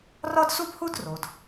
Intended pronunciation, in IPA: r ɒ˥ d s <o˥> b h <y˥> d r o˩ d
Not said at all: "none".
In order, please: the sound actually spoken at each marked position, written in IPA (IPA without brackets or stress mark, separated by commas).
u˥, u˥